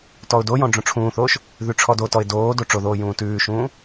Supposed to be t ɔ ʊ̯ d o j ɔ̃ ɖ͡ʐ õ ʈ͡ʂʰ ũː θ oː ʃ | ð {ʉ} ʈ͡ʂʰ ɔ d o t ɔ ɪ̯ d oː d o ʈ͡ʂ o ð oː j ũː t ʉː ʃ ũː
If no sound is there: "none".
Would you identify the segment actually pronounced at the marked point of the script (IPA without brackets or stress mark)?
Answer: ʉ